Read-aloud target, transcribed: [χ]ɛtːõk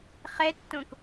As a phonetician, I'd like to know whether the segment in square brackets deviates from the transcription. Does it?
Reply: no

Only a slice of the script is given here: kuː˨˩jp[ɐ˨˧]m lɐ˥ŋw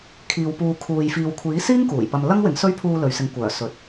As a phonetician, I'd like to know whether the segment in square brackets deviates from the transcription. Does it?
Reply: yes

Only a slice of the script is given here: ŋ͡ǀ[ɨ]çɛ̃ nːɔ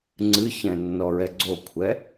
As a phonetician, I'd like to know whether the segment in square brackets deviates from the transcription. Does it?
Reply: no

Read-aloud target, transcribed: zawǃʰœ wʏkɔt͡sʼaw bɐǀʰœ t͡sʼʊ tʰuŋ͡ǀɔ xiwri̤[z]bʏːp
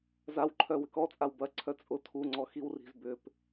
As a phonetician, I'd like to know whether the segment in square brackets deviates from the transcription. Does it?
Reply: no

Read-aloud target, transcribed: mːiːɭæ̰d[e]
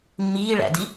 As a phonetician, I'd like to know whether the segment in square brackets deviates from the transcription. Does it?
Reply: yes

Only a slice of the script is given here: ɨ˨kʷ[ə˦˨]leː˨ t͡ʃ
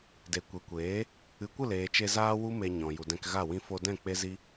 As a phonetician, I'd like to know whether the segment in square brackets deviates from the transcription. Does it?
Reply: no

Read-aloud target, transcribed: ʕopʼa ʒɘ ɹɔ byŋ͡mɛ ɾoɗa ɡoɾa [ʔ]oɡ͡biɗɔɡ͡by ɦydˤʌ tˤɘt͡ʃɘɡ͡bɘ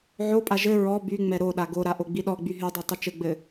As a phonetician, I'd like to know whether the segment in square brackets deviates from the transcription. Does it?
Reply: no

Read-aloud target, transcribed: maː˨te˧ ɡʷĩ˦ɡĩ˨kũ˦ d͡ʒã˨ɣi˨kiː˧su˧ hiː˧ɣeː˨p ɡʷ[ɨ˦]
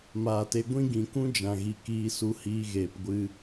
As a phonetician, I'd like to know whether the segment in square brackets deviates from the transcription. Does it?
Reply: yes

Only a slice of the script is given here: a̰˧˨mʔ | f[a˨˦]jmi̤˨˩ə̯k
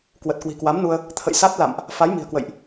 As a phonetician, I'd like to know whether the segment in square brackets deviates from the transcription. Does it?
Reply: no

